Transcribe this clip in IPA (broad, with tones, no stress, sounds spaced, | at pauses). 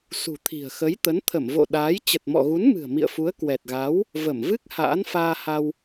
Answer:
s ṳ˨˩ t̪ʰ i̤˨˩ ə̯ x ə˨˦ j t̪ ə˨˦ n t̪ʰ ə˧˩ m v o̰˧˨ ɗ aː˨˦ j t͡ɕ ə˨˩ t̚ m ɔ̰˧˨ ɣ u˨˦ n m ɨ̤˨˩ ə̯ m ḭ˧˨ ə̯ f u˨˦ ə̯ k w ɛ˨˩ t̚ ɣ a˨˦ w | v ə˧˩ m v ɨ˦˥ k̚ h a̰ː˧˥ n f aː˧ h a˧ w